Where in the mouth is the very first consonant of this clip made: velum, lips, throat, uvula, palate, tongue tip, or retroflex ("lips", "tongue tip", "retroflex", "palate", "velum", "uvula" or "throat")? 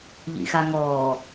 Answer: palate